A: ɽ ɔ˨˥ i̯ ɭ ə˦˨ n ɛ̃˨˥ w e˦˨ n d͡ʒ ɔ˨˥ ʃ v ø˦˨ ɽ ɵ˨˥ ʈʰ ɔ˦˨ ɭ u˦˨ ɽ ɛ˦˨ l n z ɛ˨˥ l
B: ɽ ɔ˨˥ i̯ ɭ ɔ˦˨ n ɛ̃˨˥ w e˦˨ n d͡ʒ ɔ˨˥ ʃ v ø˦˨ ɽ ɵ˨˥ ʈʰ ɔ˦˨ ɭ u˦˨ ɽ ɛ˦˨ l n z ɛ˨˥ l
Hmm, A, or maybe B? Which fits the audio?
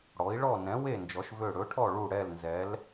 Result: B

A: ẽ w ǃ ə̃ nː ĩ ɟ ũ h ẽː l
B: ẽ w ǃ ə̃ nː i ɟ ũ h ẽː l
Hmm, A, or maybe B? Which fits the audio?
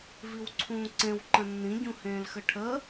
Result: A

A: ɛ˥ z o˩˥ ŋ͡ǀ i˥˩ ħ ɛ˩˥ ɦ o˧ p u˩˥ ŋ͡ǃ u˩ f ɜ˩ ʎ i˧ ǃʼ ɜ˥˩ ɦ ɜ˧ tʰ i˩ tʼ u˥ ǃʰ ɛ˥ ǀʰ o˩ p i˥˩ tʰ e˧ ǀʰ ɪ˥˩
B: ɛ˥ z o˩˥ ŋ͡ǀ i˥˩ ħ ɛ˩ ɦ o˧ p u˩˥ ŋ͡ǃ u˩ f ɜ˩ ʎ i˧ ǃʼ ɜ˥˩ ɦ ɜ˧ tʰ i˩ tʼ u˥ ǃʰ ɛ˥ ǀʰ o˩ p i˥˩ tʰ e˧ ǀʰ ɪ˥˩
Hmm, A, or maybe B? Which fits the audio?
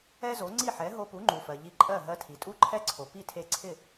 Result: A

